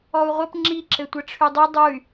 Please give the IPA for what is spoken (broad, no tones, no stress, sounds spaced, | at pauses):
ɔ u̯ ʁʷ ɘ p ŋ͡ǁ i ǁ ɘ tʷ ə ʈ͡ʂʰ y dˤ i dˤ u y̯